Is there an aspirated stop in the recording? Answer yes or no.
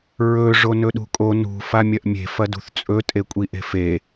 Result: no